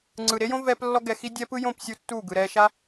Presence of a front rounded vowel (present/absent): absent